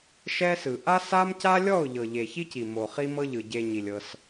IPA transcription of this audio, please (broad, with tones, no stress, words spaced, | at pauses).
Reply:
ʃɛ˦sɯ˨ ʔa˦sa˦mca˦lʲɔ˦˨ʊ̯ ʎɤ˨ʎe˨çi˦ci˨ mo˨χi˦mɤ˦ʎɯ˨ ɟe˧ɲi˨lʲ ɤ˧s